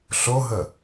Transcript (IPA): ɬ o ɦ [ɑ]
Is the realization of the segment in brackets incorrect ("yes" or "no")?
yes